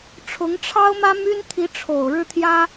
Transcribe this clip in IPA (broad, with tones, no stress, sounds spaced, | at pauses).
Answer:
ʈ͡ʂʰ ʊ˧˥ ŋ ʈ͡ʂʰ ɑ˥ ʊ̯ m ä˥ m y˥ n t̪ʰ i˧˥ ʈ͡ʂʰ o˨˩ ʊ̯ ɻ ɻ̩˥˩ t̪ʰ j ä˥